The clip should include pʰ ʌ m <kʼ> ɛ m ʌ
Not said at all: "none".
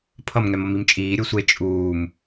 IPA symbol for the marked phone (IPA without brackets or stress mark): ŋ